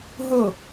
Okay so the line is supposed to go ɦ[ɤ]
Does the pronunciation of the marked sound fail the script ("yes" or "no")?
no